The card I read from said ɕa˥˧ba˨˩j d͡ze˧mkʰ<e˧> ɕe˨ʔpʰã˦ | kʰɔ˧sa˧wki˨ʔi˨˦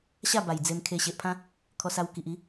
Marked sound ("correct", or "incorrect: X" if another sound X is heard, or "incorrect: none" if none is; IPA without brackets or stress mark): correct